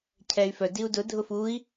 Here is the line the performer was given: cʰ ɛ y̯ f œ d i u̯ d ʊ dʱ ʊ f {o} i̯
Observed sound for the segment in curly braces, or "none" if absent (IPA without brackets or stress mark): u